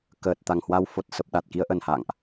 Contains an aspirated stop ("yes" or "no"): no